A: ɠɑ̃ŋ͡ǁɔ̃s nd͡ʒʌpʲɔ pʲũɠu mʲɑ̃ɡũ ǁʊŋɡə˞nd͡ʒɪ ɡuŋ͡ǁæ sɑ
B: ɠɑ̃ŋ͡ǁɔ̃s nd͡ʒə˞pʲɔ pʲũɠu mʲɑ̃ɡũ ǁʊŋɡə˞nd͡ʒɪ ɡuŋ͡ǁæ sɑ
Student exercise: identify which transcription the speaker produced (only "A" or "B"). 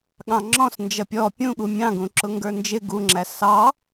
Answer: A